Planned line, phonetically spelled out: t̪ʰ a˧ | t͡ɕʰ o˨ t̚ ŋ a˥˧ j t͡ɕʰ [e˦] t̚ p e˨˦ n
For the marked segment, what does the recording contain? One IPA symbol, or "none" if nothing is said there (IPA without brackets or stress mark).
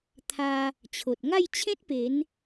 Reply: ẽ˦